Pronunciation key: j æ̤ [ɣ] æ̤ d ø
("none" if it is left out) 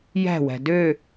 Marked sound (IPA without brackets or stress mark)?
w